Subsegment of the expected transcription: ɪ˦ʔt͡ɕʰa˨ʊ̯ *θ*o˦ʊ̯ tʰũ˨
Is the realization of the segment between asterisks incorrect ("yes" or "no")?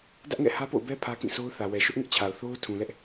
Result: no